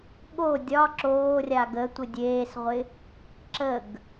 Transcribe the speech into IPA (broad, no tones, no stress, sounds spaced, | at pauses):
ɠ o dʲ ɒ ǁ oː rʲ a ɡ ə tʷ ɪ dʲ eː s ʁʷ ɪ | ǁ ə ɡ